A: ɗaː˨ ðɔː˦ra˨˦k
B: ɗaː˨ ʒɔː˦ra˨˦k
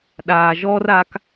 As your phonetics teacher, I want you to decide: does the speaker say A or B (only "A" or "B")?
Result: B